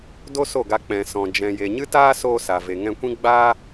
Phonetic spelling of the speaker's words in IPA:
d o˦ s o˦˨ ɡ a˧ k͡p ɛ̃˨ s ɔ̃˨ d͡ʒ ɛ̃˨ j e˨ ɲ ɨ˦ t aː˦ s oː˦ s a˨ v e˨ ŋ ɛ̃˧ kʷ ĩ˦ ɡ͡b aː˦

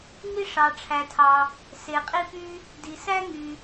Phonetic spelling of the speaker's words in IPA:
ŋ i˥ ʂ ɑ˩ ʈ͡ʂʰ æ˩ tʰ ɑ˩ | s e˩ qʼ i˥ p y˥ | d i˩ s æ˥ ŋ y˩

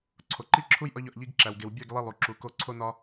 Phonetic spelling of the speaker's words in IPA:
ǀʰ o˨ ǃ i˦ ǁʰ u˦ j ʔ ɒ˦ ʎ ɒ˨ ʔ ʎ i˦ ɡ ǁ æ˨ w ɡ e˨ w bʲ e˦˨ ɡ lˠ i˦ lˠ u˨ ǁ u˨ k o˦˨ ǀʰ o˦ n ɒ˦

